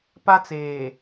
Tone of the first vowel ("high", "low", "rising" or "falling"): high